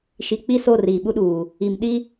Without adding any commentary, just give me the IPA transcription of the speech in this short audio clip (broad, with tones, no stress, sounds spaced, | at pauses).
ʃ i˨ k͡p i˦ s o˦˨ r iː˨ ɓ u˦ ɗ uː˨ | i˨ m ɗ i˦